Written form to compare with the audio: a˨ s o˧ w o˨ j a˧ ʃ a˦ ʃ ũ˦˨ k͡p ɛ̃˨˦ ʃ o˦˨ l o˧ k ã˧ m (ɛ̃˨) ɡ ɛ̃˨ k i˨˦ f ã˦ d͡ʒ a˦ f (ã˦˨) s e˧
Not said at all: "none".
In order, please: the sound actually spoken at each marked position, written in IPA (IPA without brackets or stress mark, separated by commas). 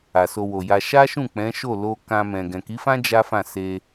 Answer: ɛ̃˨, ã˦˨